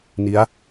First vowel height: high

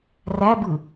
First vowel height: low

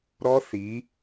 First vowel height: mid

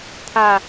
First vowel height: low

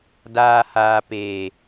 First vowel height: low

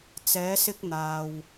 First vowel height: mid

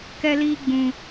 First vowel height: mid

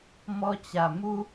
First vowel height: mid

